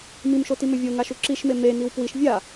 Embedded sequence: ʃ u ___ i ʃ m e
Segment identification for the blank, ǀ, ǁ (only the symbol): ǁ